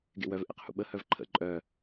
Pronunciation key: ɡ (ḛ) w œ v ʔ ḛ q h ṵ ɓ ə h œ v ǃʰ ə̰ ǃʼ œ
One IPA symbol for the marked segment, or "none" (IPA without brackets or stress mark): ḛ